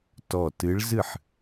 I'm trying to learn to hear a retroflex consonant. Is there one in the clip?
yes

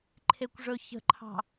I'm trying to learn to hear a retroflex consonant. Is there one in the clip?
yes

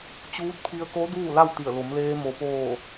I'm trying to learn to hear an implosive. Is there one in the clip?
no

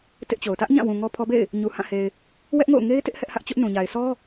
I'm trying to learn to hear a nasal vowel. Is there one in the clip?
yes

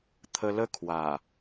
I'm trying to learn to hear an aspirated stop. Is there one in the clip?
yes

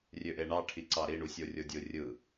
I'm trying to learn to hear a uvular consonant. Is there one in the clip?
no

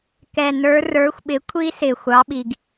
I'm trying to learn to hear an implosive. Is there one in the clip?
yes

